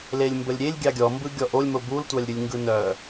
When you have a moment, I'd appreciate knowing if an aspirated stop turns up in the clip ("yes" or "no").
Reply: no